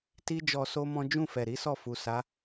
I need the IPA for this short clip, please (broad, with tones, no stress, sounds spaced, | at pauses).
t i˦ d͡ʒ ɔ˧ s o˦ m ɔ̃˦ d͡ʒ ũ˦˨ f ɛ˨ ɾ i˨˦ s ɔ˦˨ f u˨ s a˨˦